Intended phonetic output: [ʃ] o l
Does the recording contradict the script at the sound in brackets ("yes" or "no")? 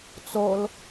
yes